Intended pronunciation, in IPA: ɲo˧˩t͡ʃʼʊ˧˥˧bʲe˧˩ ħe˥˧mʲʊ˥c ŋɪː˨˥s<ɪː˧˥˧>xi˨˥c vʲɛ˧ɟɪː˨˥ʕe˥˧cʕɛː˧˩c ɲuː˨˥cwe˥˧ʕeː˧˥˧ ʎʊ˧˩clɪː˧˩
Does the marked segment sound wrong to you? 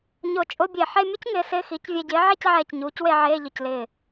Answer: no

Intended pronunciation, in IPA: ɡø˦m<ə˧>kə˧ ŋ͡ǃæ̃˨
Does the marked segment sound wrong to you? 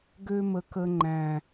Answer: no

